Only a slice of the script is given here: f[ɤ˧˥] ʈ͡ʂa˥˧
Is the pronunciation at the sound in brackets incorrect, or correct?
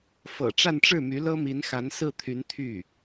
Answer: incorrect